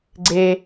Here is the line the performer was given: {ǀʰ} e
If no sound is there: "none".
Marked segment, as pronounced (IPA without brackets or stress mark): ɡ͡ǀ